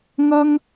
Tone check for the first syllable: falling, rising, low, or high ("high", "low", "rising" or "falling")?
high